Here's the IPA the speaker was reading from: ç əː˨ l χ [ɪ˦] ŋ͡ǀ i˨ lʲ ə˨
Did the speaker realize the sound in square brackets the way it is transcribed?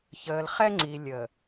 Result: no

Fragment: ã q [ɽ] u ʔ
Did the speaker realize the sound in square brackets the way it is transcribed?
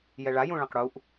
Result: yes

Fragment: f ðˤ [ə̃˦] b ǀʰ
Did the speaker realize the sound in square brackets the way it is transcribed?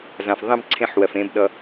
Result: yes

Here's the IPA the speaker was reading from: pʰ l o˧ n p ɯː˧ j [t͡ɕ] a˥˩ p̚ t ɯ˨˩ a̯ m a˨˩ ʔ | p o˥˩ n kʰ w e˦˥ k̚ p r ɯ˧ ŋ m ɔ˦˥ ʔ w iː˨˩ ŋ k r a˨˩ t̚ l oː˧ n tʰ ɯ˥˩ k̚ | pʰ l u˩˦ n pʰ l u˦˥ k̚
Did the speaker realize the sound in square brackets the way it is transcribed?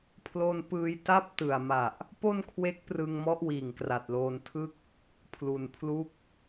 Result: no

